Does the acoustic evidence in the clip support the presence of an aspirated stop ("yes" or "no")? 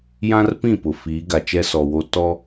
no